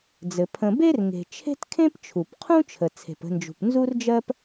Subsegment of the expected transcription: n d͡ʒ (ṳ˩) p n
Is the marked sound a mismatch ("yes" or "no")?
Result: no